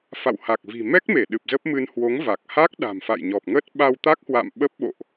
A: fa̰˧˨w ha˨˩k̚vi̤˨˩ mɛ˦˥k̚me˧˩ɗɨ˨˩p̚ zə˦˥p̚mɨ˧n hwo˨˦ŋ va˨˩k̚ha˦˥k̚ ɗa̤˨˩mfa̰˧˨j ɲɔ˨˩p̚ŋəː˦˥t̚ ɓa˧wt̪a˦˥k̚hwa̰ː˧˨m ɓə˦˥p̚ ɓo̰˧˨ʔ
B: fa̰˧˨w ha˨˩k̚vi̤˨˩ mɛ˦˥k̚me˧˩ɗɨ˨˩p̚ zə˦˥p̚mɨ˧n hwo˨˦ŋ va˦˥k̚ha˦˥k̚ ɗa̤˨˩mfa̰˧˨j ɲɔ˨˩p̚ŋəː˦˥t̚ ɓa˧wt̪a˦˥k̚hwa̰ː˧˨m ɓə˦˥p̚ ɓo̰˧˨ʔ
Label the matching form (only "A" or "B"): A